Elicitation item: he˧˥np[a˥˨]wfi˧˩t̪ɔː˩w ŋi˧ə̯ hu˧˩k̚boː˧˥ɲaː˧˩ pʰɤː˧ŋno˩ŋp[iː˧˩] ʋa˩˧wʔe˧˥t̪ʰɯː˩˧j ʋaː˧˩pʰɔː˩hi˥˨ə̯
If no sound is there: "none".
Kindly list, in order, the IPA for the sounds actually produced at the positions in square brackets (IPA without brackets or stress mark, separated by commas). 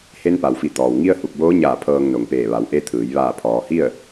a˩, eː˧˩